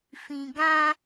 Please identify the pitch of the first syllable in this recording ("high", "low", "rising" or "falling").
low